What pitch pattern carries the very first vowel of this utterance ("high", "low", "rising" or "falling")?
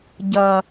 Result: low